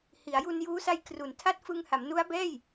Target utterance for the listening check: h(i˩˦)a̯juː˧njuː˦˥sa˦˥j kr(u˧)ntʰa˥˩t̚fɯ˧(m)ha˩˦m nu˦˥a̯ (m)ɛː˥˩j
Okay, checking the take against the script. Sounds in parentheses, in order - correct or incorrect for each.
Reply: correct, incorrect: u˩˦, incorrect: ŋ, incorrect: b

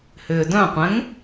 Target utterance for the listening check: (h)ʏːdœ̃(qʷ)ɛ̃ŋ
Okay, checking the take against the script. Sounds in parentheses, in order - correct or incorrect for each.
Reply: correct, correct

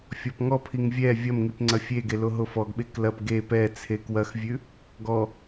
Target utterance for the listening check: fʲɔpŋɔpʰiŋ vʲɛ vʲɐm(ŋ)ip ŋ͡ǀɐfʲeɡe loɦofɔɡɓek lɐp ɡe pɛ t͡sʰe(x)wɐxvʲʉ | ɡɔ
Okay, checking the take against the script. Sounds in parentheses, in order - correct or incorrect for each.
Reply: correct, incorrect: k

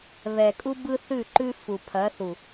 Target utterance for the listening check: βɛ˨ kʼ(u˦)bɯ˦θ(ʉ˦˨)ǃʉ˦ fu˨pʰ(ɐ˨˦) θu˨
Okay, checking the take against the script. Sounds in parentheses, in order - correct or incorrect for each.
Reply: correct, correct, correct

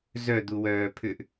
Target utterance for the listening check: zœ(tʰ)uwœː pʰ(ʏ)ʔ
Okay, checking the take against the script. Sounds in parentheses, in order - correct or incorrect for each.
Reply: incorrect: d̪, correct

